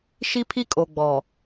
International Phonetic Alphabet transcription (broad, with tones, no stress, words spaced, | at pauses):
ʃi˦pʰi˦kʼo˨ ɡ͡bɔ˨